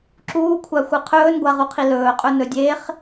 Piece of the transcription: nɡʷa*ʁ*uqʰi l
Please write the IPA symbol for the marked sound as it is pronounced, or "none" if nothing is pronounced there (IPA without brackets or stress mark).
ʁ